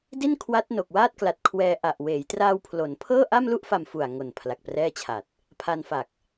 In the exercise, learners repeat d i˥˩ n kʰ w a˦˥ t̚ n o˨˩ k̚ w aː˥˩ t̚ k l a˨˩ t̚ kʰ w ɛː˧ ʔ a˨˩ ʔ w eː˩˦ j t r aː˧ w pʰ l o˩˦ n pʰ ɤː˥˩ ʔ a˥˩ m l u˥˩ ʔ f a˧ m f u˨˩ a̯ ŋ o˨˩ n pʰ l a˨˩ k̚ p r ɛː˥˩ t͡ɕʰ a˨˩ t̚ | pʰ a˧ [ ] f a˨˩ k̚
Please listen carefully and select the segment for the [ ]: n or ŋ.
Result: n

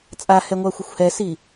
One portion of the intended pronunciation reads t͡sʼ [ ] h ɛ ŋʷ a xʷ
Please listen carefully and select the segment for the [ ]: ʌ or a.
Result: a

